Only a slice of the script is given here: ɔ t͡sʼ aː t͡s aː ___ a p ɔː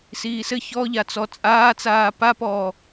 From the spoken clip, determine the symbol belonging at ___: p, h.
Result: p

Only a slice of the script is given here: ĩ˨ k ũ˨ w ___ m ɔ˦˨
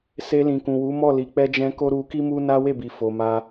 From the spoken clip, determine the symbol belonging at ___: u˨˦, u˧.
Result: u˨˦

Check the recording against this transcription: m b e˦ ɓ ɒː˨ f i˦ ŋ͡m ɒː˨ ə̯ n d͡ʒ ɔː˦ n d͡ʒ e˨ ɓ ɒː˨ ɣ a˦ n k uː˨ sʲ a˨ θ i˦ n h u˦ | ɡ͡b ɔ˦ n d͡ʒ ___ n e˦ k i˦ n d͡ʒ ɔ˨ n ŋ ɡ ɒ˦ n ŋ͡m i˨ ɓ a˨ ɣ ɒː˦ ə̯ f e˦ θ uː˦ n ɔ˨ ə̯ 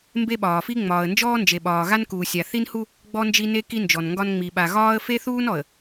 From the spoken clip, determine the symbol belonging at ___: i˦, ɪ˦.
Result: i˦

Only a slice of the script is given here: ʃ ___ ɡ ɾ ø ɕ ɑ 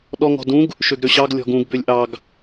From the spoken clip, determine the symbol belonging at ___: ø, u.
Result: ø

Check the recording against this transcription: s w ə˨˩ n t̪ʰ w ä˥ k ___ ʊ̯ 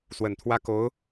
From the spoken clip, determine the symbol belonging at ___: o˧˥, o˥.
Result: o˧˥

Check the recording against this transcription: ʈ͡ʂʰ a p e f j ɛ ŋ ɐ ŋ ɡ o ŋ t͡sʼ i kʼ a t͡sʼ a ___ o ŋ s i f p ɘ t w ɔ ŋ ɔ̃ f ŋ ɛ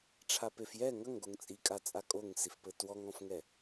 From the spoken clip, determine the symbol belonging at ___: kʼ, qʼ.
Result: kʼ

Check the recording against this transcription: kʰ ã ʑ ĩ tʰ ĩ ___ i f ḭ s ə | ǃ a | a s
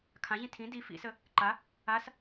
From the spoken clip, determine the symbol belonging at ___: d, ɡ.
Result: d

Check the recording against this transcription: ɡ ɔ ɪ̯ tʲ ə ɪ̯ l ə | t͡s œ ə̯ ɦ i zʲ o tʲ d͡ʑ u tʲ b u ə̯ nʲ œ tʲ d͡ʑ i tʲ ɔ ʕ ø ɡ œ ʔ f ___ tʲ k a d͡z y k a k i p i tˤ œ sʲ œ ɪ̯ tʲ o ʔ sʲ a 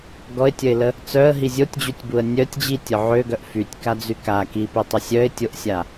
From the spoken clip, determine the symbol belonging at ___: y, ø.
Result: y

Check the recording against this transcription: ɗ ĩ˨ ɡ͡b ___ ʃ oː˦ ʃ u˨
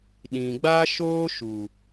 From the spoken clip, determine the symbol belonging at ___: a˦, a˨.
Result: a˦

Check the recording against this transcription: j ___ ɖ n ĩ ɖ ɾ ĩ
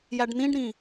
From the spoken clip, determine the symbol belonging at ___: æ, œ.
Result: æ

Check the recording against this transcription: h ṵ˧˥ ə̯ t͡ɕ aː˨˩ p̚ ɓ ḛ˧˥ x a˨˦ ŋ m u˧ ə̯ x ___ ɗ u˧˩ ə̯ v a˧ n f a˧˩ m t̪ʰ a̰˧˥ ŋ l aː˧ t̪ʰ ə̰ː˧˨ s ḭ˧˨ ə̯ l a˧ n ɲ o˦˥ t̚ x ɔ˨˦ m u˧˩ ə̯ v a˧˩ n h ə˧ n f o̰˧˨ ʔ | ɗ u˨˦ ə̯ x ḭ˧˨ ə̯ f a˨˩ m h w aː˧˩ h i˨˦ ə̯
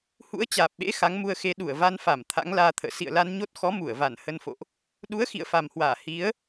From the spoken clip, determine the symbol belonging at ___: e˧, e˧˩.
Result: e˧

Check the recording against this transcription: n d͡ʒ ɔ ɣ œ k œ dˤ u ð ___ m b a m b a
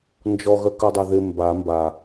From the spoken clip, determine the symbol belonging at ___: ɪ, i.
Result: ɪ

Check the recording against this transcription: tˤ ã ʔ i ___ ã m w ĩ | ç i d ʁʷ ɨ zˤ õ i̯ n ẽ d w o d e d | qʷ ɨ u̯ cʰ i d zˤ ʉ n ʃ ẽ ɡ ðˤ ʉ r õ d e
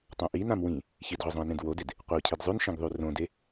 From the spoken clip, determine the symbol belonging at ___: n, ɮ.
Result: n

